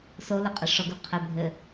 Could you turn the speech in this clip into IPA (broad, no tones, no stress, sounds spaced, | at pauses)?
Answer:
s o l ɘ qʼ ɘ ʂ ɔ ɡ u qʰ ɘ bʱ ɘ